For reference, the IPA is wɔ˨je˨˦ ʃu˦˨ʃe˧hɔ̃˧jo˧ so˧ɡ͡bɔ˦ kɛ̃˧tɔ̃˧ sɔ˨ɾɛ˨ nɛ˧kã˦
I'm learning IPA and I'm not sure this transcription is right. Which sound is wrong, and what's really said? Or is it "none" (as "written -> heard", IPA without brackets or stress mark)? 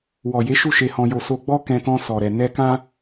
none